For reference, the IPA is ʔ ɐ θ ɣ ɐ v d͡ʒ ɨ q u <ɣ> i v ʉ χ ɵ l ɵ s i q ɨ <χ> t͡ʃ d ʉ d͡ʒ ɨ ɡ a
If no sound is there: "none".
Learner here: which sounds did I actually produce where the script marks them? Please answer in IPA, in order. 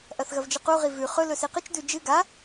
ʁ, none

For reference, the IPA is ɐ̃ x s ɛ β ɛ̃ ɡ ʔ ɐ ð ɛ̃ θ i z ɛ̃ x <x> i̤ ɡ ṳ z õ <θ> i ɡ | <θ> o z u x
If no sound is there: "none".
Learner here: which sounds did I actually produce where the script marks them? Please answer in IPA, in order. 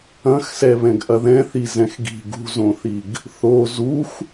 ɡ, θ, θ

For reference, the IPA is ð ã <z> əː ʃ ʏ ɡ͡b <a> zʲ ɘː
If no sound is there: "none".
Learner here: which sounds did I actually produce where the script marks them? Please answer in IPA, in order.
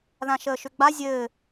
ʃ, a

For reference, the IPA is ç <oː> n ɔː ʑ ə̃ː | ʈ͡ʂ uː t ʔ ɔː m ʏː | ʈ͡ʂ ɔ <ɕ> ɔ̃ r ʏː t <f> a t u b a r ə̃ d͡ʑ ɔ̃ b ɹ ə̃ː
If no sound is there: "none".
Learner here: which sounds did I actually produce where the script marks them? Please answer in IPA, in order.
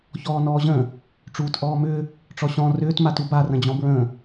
ɔː, ɕ, m

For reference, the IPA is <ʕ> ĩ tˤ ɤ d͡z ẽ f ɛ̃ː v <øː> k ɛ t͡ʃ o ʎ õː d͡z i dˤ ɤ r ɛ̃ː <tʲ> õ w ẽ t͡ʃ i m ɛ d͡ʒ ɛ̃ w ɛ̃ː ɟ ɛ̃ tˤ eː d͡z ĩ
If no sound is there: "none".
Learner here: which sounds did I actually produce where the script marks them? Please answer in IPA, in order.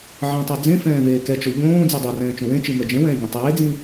ʕ, eː, t͡ʃ

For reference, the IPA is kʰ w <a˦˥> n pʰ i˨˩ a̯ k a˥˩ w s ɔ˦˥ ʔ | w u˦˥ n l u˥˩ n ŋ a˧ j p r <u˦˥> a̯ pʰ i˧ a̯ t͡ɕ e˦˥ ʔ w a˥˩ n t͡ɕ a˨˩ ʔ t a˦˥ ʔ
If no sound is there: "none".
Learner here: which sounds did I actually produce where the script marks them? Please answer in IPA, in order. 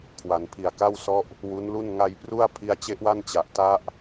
a˩˦, u˥˩

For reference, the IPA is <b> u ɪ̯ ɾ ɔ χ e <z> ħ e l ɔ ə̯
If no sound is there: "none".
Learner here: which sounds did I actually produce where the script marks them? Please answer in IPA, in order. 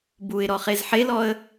b, z

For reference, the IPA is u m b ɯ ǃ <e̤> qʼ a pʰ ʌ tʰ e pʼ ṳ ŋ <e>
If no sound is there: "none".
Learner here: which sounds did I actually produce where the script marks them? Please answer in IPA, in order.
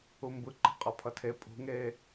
e̤, e

